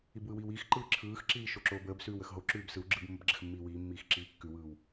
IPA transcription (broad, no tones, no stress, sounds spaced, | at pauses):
i b w ɯ w iː w iː x ǃ ɯː ǁʰ ɯː x ǁ iː ʃ o ǁ oː b əː b s ʉː w ə x ɦ o ǁ ʉː b s ɯ w ɡ͡ǁ ɯ b mː ə b ɡ͡ǁ ə x mː iː w iː mː iː x ǁ iː kː ʉ w ɯː w